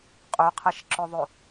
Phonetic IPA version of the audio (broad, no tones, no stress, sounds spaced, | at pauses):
qʼ ø qʰ ɛ ʃ ǁ œ ðˤ ø